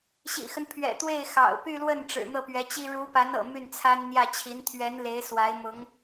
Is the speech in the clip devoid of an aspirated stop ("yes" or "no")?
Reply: no